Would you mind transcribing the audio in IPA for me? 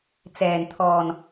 t͡s ɛː˨˩ n t̪ʰ ɔː˨˩ n

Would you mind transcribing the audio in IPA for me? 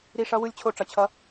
ɾ i˦˥ ʂ ʌ˦˥ w ɯ˦˥ lʲ t͡ɕʰ o˦˥ ʈ͡ʂ ʌ˧ t͡ɕʰ ʌ˦˥

